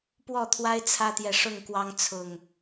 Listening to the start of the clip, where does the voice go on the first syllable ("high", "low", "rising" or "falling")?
falling